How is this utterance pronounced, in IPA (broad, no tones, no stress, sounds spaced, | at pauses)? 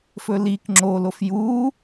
f ɵ l i k ŋ͡ǁ o l o f j u